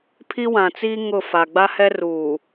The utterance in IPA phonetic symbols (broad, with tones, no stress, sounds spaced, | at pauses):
pʰ i˦ w ã˨ t͡s iː˦ ŋ ʊ˦˨ f a˨ ɡ͡b a˦ h ɛ˦ r uː˨